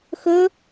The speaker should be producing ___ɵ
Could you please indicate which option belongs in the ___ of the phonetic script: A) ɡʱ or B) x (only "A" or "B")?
B